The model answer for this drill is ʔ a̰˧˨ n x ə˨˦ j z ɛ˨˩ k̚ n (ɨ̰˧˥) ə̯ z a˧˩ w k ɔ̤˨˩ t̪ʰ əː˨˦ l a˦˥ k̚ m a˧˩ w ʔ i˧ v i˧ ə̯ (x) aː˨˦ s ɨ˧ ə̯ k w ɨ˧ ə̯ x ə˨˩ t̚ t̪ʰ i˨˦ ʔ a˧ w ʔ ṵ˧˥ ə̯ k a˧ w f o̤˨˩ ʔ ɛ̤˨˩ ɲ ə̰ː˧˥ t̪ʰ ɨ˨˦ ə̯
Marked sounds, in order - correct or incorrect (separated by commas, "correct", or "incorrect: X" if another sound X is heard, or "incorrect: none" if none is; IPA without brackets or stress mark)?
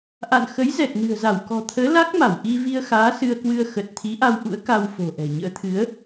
incorrect: ɨ̤˨˩, correct